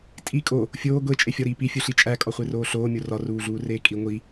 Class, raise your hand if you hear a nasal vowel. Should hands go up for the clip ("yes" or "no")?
no